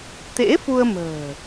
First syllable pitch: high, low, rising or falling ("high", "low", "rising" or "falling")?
rising